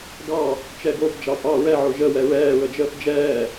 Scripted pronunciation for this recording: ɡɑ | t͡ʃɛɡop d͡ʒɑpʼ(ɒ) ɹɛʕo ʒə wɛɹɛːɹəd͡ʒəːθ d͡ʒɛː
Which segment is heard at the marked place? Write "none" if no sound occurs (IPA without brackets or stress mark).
ɑ